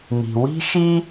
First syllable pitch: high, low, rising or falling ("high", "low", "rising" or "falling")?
low